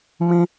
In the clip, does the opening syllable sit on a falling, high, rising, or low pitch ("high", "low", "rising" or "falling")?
high